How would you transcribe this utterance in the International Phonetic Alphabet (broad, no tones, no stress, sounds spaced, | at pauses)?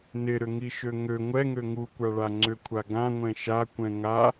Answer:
n ɪ ɾ ʏ ŋ i ʃ ø ŋ ø ŋʷ ɛ ŋ ø ŋ u kʷ a ɭ a ŋ͡ǀ ʏ kʷʰ a ɡ ã ŋʷ ɛ̃ ʃ a kʷ ɛ̃ ŋ a